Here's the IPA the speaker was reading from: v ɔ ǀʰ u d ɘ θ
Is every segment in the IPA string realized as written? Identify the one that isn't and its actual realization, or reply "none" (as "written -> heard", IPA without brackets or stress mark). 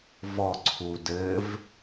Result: θ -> v